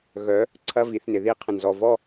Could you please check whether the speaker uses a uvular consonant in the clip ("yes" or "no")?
yes